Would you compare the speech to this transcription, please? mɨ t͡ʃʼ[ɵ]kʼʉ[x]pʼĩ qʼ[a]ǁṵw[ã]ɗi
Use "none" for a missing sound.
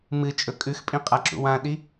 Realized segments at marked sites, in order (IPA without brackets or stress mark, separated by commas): ɵ, x, a, ã